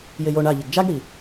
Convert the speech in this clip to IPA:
j ɪ j o ɳ a ʎ ɪ ɡ d͡ʒ a ɡ ɽ i

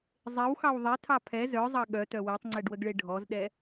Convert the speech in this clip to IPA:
zˤ e w x ɑ w ðˤ ɛ tʰ ɑ pʰ ɛ z œ zˤ ɑ ɠ œ t œ w e tˤ ŋ͡ǀ ɛ ɖ w ə ɡ ɭ e ɖʱ ɔ z ɗ ɛ

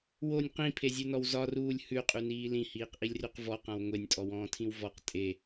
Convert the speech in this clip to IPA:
w o nʲ q ĩ pʰ e zʲ ʉ n ɔ w z ɒ r uː lʲ h ʉ qʼ ʉ n iː l ĩ h iː q ʔ i lʲ r ʉ q v ɔ q ã w ŋʷ e nʲ tʼ ɔ w ɔ̃ː tʰ ĩ w v ɔ q tʼ e

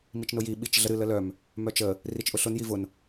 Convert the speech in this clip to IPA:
m i t͡ʃ n ʊ j i ɓ i t͡ʃ ɮ ə ɾ ɨ l ə l œ m | m œ t͡ʃ ə | r i t͡ʃ ʔ ʊ ɬ ʊ n j i v ʊ n

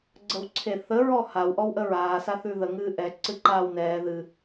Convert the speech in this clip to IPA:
ɡ͡ǀ ə w ǀʰ e θ ə ɹ ɔ h a w ʔ ɔ w ʔ ə ɹ aː s a θ ʉ ð ə ŋ ɨː ʔ ɛ ǀ ɨ ǃ aː w n ɛː ð ɨ

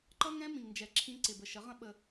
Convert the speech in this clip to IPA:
ǃ ʌ˦ ŋ ɛ̃˦ m ĩ˨ ŋ n d͡ʒ ɛ˨ ǁʰ ĩ˧ ǀ ɪ˨ b ə˨ ʃ ə˨˦ ʁ ə̃˦ ɓ ə˧

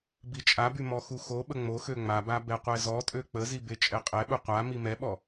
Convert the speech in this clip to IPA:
b i t͡ʃʼ a b y m ɔ x u x o ɓ ə ŋ͡m o x ø ŋ͡m a b a b ɛ qʷ ɛ z ɔ tʼ ø k͡p ə z i b e t͡ʃʼ ɛ qʼ ɛ ɓ u qʷ a m i m ɛ ɓ ɔ

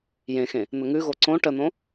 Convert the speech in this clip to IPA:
j ẽ x ẽ | n̪ ə ŋ ʉ ɣ o ǀ õ ʈ ə n̪ õ

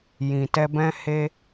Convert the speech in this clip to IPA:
j ĩ˨ t ɛ˧ b ɛ̃˦ h e˦

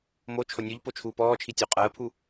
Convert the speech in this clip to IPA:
m o t͡ʃʰ o nʲ u ʎ p o t͡ʃʰ uː p ɔː t͡ʃʰ i tʲ o qʼ ɜː pʰ u

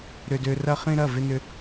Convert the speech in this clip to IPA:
ɾ ʏ˥ d ø˥ r ɐ˥ χ ĩ˥ ɾ ɐ˧˥˧ v ɪ˥ n ʏ˥

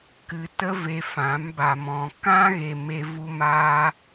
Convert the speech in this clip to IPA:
k ɨ˧ t ə˦ v e˧ f ã˨˦ m b a˨ m ɔ̃˨ k ã˦ ɣ e˨ m e˧ v u˧ m aː˧

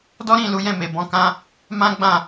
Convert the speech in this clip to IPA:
d ɔ˦ ɾ ĩ˦˨ l u˨˦ j ɛ̃˦˨ m e˨ b ɔ̃˧ k ã˦ | m ã˦ ɡ͡b ã˦˨

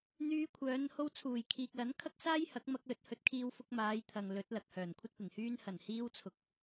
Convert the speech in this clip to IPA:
n̪ yː˧ kʷʰ œː˨˧ n h o˧ w t͡sʰ uː˨˩ j kʰ iː˨ k̚ l ɐ˨˥ n kʰ ɐ˥ k̚ s aː˥ j h ɐ˨˥ k̚ m ɐ˧ k̚ l ɵ˨˥ t̚ h ɵ˨˥ t̚ kʰ iː˧ w f ʊ˧ k̚ m aː˨˧ j t̪ʰ ɐ˨ ŋ l ɵ˨˥ t̚ l ɐ˨ k̚ h œː˨˩ n kʷʰ ɐ˥ t̚ p ɪ˨˩ ŋ h yː˥ n h ɐ˨˩ n h iː˧ w t͡sʰ ʊ˨ k̚

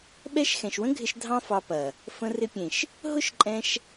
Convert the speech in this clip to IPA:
ɓ ɛ˦ ʃ x ɛ̃˨ ʃ w ə̃˦ ɡʱ ɪ˧ ʃ dʱ ɑ̃˦ f ɑ˧ p ɐ˨ | f ə̃˦ r ɪ˦ pʲ ẽ˨ ʃ | ɦ ʊ˦ ʃ ǃʼ ɛ̃˧ ʃ

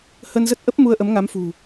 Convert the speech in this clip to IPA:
h ə˧ n z ə˦˥ t̚ ʔ ə˦˥ p̚ m u˧ ə̯ ʔ ə˨˦ m ŋ a˨˦ m f ṳ˨˩

